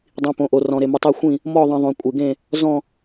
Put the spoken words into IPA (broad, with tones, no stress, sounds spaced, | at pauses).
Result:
dˤ ĩ˩ p õ˩ ʔ o˩ r ɔ̃˩ ɾ e˩ m u˩ tˤ o˧˩ xʷ ĩ˧˩ | m ɔ˧˩ ðˤ ĩ˩ ðˤ õ˩ kʷʼ e˩ ɡ ẽ˧˩ | z ɔ̃˧˩